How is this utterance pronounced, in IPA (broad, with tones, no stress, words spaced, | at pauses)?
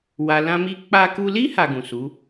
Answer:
wa˦ lã˦mi˦ k͡pa˧ku˧li˦ ha˧ɡũ˨su˨˦